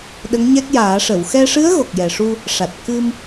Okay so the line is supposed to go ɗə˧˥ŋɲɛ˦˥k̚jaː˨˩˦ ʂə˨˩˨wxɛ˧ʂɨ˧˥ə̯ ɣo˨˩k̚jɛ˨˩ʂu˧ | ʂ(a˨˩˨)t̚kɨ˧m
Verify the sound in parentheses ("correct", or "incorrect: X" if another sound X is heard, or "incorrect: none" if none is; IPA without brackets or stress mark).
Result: incorrect: a˨˩